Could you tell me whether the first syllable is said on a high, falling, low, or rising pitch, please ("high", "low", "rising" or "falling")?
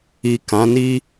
low